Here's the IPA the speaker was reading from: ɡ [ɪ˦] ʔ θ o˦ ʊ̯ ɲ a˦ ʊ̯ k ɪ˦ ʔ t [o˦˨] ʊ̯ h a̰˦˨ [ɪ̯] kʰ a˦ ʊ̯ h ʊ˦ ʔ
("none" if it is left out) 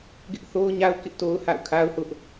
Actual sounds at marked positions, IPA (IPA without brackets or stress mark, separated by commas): ɪ˦, o˦, ʊ̯